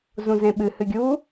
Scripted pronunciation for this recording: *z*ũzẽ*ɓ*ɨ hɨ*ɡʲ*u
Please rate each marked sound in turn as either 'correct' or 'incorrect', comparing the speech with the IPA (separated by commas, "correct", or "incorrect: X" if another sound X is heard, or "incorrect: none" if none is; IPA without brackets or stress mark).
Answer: correct, correct, correct